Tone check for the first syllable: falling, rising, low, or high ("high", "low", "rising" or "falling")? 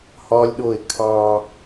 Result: high